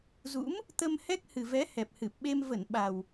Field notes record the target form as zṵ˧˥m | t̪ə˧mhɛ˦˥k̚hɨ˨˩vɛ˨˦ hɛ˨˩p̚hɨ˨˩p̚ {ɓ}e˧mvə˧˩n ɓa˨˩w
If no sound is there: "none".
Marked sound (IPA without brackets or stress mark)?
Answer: ɓ